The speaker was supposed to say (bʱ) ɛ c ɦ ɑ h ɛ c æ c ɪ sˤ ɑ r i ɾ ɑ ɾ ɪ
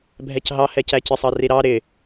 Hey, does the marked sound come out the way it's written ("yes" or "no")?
yes